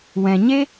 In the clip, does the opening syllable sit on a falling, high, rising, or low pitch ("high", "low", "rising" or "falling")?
low